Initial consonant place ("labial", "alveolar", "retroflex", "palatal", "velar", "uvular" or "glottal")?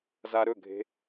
alveolar